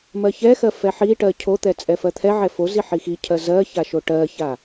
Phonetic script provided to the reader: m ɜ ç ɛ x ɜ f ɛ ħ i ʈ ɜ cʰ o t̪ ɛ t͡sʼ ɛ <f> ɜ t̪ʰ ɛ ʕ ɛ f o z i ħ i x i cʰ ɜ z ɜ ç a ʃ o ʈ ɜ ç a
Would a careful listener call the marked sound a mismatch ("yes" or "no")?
no